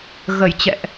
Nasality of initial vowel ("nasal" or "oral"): oral